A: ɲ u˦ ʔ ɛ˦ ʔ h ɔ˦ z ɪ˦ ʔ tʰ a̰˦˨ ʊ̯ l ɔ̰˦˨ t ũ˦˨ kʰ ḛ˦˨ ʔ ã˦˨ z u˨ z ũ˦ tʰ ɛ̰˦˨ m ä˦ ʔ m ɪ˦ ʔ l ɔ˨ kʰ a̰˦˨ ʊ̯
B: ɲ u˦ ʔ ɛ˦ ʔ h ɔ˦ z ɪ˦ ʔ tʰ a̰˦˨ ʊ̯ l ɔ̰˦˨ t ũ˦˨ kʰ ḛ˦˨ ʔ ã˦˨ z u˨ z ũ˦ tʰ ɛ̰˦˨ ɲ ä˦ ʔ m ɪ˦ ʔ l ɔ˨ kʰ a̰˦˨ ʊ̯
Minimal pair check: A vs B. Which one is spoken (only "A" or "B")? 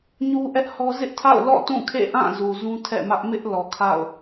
A